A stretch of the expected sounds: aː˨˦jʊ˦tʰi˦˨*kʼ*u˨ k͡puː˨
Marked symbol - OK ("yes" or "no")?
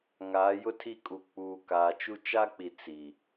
yes